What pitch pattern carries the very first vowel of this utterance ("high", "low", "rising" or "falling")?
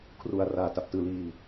low